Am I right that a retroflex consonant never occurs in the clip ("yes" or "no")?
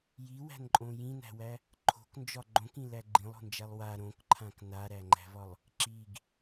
yes